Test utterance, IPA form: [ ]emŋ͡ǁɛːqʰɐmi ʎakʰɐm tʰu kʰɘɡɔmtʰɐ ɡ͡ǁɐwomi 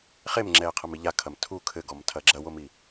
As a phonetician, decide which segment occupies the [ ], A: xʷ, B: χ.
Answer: B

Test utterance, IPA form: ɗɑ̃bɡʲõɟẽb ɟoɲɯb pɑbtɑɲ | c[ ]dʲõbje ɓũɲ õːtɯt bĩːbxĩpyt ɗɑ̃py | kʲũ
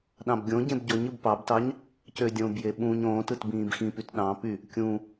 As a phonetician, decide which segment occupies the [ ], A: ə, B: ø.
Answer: B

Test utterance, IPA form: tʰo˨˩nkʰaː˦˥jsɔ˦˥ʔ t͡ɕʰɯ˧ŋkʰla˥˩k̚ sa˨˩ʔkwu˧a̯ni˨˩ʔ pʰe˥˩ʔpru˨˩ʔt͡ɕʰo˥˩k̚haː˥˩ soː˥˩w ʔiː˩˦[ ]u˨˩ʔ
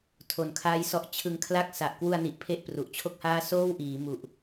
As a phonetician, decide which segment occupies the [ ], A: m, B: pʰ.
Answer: A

